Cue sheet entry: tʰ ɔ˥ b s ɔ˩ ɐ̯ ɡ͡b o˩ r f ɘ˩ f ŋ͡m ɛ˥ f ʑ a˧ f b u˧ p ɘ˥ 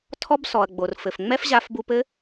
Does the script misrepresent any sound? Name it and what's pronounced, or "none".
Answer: none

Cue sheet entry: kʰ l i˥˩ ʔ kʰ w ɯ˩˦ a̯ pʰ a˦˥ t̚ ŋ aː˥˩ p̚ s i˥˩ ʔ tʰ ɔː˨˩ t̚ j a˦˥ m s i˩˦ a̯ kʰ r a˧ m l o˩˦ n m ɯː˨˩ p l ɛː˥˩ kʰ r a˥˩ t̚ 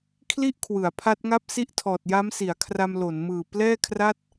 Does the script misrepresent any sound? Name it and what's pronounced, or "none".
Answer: aː˥˩ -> a˥˩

